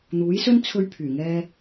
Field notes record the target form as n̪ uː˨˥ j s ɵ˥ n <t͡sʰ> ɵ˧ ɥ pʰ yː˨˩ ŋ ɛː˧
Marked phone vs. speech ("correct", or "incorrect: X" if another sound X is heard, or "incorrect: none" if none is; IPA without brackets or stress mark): correct